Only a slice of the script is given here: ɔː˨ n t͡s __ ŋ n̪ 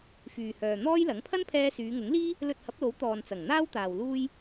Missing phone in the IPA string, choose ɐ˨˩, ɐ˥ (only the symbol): ɐ˨˩